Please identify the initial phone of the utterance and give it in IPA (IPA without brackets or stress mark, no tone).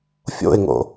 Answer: fʲ